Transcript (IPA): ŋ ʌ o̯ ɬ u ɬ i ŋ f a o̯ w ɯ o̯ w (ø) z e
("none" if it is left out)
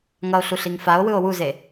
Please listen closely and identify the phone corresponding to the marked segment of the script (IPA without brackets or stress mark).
u